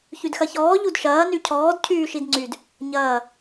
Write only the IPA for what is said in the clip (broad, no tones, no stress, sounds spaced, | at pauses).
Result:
ç y d x ɐ ç ɔː ʎ u d ʃ ɐː n y cʰ ɔː d cʰ yː ʃ i d ŋ͡ǀ y d | ɲ ɐː